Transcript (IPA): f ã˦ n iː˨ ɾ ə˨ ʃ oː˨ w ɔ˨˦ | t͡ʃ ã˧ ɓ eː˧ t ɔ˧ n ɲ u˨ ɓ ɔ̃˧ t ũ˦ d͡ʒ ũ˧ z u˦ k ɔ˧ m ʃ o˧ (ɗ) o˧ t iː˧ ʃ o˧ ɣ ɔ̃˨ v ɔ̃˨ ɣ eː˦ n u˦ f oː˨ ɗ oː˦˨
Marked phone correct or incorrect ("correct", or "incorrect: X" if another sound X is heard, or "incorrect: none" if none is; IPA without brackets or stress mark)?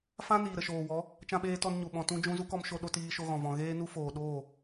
correct